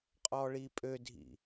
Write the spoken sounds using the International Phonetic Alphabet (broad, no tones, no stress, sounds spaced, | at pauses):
qʼ ɔ ɭ i pʼ ø dʱ ḭ